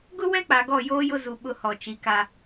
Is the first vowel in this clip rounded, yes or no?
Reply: yes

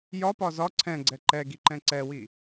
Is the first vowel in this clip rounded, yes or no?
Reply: yes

